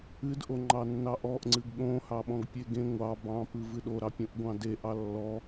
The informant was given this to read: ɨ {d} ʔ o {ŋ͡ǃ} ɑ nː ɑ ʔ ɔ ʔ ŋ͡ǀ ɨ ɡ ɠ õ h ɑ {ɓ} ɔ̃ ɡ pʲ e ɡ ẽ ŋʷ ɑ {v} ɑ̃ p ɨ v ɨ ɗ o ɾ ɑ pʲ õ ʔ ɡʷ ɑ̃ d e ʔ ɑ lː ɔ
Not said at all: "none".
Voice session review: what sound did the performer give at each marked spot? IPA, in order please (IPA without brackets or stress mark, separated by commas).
d, ŋ͡ǃ, ɓ, b